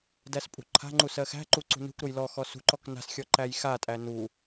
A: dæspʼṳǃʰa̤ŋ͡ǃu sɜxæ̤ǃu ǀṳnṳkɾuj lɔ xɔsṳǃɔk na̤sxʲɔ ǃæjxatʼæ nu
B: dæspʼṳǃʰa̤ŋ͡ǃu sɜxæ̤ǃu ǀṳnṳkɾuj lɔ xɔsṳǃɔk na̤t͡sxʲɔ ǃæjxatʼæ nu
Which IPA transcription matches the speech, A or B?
A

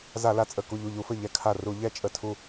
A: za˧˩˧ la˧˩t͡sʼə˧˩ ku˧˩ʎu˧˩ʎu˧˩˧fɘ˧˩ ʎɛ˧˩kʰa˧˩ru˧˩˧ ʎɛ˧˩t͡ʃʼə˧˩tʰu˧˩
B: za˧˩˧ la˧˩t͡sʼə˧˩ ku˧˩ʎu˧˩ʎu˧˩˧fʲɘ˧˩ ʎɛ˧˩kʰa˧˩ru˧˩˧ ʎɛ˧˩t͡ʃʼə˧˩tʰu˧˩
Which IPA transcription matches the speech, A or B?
A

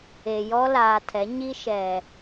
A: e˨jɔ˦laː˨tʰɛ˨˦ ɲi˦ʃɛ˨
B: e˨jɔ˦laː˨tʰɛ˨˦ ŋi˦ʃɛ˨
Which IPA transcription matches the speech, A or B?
A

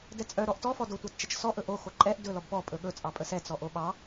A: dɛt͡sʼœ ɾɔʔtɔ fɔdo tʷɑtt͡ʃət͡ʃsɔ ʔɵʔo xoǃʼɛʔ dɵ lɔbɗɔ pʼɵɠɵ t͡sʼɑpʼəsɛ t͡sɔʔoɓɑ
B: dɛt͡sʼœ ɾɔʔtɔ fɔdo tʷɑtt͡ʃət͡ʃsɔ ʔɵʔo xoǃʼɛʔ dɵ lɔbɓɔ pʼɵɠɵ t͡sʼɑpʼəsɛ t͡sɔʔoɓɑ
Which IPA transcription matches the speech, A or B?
B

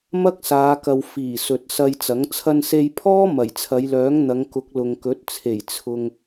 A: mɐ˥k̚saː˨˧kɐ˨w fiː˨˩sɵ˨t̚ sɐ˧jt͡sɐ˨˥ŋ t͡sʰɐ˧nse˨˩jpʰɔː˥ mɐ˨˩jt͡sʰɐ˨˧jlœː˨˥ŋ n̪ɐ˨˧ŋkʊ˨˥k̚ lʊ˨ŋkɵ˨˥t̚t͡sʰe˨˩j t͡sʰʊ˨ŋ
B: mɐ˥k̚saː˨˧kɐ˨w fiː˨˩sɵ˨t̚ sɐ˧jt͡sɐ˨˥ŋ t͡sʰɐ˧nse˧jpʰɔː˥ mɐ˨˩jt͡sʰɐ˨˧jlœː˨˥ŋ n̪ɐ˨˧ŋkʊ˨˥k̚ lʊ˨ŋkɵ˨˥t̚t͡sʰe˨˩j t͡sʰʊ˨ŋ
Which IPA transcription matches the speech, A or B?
B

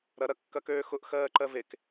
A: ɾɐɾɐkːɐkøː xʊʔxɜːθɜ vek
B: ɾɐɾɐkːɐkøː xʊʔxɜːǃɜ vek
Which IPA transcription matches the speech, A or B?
B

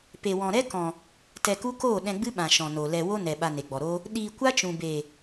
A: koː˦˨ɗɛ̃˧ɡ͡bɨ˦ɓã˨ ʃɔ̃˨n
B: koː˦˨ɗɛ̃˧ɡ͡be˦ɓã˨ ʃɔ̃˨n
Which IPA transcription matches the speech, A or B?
A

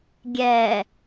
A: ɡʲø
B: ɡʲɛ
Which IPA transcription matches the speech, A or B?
B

